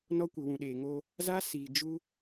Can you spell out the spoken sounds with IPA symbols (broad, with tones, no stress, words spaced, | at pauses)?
nɔ˦kʷɪ˨wũ˨ ɗeː˨ŋo˦ | za˦ siː˨d͡ʒu˦